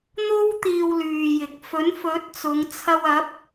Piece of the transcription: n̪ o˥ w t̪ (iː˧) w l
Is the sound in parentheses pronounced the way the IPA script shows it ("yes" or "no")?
yes